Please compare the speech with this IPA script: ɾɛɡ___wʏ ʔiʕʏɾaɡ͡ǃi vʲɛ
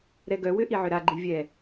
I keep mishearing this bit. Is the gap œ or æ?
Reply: œ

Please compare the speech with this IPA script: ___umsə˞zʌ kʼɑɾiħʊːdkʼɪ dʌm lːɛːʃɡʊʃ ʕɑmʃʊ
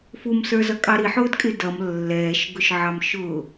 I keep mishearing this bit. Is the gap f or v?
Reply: f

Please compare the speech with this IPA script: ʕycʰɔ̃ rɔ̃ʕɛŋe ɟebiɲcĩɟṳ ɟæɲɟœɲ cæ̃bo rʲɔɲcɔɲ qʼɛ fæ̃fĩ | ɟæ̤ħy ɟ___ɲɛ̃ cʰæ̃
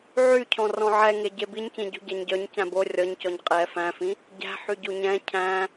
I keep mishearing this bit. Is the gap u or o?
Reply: u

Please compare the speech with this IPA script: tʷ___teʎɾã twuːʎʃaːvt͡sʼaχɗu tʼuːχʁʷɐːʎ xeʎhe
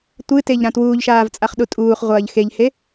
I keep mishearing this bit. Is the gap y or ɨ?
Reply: ɨ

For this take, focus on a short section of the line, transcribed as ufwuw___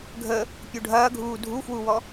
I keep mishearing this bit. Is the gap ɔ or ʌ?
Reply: ɔ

